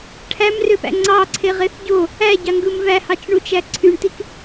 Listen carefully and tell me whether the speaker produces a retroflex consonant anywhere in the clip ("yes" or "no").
yes